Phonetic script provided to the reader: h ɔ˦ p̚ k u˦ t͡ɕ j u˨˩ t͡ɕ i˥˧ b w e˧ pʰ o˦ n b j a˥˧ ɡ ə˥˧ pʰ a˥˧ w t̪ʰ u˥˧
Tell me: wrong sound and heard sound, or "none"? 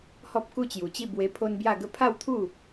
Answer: none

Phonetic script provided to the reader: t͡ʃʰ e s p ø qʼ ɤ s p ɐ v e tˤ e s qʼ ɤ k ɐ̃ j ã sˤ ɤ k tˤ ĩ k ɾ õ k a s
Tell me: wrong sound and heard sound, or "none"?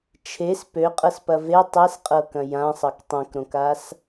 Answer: ĩ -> ẽ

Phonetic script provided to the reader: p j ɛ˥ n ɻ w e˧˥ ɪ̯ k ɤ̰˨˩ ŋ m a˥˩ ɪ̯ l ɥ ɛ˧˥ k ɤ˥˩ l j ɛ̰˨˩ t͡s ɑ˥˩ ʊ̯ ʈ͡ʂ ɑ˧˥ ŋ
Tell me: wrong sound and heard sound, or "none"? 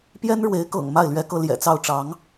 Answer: none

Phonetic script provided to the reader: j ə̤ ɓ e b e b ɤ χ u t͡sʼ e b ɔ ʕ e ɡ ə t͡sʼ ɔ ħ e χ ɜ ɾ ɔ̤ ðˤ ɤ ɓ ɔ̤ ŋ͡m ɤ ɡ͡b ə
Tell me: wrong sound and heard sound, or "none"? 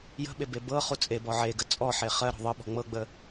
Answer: none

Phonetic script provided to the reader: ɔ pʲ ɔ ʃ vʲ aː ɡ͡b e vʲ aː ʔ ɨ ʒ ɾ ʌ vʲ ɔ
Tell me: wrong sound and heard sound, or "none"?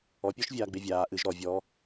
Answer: ʌ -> ɔ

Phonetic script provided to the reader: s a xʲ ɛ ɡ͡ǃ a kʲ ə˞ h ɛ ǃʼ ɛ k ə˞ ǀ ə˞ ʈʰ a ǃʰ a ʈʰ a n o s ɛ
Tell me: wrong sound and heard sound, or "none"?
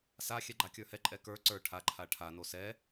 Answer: none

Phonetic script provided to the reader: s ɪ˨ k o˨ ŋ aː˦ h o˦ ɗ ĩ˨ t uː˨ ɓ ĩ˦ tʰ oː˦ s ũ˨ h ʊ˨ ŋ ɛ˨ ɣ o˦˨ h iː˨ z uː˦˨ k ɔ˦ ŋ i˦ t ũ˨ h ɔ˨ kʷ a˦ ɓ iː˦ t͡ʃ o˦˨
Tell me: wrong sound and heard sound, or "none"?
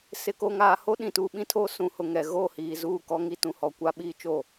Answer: aː˦ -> aː˨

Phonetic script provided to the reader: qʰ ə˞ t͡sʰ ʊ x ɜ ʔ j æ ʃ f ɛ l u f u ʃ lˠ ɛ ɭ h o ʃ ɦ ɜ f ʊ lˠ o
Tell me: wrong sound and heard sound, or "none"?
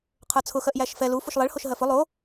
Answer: none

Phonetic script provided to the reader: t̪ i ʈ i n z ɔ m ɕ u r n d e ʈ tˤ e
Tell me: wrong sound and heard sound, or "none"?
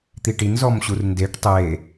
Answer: none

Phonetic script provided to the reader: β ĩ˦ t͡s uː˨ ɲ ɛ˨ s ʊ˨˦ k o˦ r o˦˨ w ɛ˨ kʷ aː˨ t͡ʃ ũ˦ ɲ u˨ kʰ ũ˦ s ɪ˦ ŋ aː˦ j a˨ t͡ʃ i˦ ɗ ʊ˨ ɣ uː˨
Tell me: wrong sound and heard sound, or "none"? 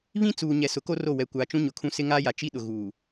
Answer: u˨ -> ʊ˨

